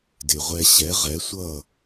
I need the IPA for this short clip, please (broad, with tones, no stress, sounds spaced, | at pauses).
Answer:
d ɪ˩ ʁʷ ɛ˧ ɕ ɛ˩˥ ʁ ɛ˩˥ sʷ ʌ˥˩